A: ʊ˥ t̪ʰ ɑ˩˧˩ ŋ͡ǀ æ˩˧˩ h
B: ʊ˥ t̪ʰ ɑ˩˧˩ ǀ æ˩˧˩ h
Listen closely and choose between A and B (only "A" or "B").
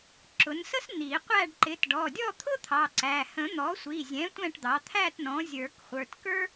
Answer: B